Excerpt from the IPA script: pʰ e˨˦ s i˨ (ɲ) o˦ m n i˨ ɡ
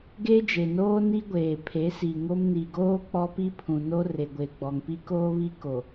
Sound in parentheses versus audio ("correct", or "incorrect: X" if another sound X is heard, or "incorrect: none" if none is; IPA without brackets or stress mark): incorrect: ŋ